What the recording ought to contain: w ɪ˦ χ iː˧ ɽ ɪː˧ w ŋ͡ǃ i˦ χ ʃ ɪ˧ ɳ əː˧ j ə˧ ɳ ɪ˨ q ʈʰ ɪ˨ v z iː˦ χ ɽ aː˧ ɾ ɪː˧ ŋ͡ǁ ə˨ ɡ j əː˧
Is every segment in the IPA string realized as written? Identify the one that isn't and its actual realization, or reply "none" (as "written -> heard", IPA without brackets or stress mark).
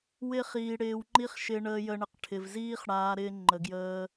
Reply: ŋ͡ǁ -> ŋ͡ǃ